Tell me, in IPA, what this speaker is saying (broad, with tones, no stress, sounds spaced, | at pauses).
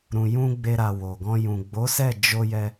ɾ ũ˨ j ũ˧ ɡ͡b e˧ ɾ a˨ w o˨ ɡ ɔ̃˧ j ũ˨ ɡ͡b o˨˦ s ɛ˦˨ d͡ʒ o˧ j ɛ˧